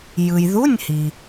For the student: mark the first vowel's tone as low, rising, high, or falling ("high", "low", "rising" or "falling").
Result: low